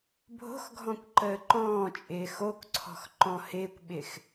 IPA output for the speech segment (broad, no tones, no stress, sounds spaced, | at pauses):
bʱ o̤ x ɡʱ ɔ̃ kʷ ǃ əː ǃ ɔ̃ː t͡ʃʼ ɪː x o k ǀʰ ɔ̤ x ǃ ɔ̃ h ɪː kʷ ɓ ɪ x